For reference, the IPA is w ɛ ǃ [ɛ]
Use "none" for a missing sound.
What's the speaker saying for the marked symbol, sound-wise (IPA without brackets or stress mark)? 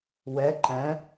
ɛ̃